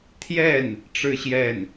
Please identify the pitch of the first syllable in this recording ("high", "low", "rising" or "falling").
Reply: falling